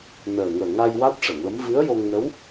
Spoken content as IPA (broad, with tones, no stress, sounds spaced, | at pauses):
n əː˨˩ ŋ əː˨˩ ŋ a˧ j w a˦˥ t̚ ʂ ə˨˩˨ ŋ l ə˧˥ m v ɨ˧˥ ə̯ j o˧ ŋ n ə˧˥ w